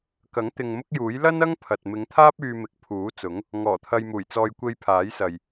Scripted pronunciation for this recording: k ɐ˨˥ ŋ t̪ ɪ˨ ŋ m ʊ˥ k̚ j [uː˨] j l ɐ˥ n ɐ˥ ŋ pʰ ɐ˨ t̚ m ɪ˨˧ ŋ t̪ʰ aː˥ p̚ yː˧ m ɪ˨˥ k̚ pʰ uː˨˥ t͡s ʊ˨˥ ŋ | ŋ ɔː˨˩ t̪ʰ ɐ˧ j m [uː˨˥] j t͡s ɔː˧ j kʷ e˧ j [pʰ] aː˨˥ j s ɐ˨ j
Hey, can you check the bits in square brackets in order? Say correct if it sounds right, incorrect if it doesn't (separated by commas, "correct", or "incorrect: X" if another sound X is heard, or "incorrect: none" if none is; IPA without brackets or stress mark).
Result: incorrect: uː˨˥, incorrect: uː˨˩, correct